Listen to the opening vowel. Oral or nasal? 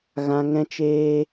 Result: nasal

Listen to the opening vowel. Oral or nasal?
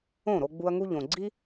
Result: nasal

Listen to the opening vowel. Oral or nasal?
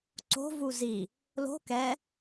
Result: oral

